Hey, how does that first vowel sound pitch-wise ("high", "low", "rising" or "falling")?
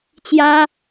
high